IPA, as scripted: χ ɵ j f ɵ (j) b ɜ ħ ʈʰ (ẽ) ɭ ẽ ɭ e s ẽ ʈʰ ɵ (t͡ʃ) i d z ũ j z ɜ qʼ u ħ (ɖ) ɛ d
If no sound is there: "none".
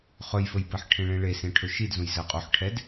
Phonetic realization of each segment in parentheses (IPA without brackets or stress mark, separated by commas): j, ẽ, ʃ, ʈʰ